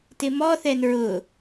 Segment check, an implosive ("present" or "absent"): absent